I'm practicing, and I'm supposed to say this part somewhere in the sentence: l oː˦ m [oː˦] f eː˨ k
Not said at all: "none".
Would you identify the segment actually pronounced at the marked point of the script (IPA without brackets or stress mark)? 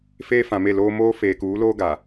oː˦